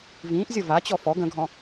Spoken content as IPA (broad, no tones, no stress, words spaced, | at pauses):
vĩːʔzʲʌ vat͡ɕɔ fɔɡ ə̃ɡʱɔ̃